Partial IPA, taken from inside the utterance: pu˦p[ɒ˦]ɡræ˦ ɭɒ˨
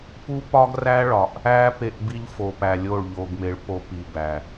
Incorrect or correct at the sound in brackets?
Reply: correct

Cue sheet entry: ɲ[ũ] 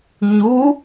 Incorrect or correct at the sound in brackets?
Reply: incorrect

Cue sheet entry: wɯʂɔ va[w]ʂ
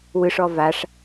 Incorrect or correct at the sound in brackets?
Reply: incorrect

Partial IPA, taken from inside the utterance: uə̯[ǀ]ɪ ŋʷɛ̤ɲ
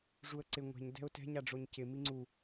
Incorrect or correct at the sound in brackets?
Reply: correct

